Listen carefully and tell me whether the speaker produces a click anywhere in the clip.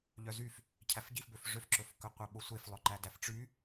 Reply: yes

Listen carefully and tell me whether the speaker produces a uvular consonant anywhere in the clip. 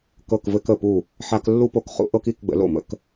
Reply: yes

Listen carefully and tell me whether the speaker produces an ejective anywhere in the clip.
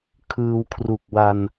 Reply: no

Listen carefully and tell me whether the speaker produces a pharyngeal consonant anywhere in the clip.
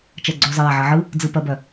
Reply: yes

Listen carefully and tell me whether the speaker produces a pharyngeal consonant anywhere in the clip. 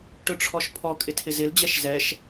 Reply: no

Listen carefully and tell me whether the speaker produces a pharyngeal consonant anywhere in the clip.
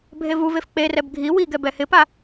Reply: no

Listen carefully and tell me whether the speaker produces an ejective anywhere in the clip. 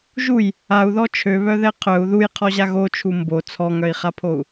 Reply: no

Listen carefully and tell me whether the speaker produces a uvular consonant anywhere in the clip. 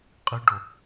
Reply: yes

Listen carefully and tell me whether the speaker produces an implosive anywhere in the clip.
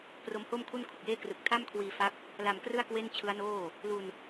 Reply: no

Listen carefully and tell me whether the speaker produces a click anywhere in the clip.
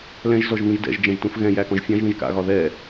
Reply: no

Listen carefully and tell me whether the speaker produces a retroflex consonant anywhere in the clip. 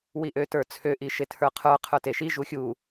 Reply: no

